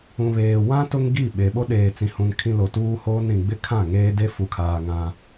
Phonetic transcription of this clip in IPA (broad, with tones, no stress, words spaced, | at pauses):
ũ˨βeː˨wã˦ tʊ˦ŋɡi˦˨ɓe˨ ɓo˦ɗeː˨t͡sĩ˨hũ˨n kʰĩ˦ lo˨tuː˦hoː˦n ɾĩ˨ɡ͡bɪ˦kʰã˦˨ ŋeː˦de˦ fu˨kʰaː˨ ŋã˦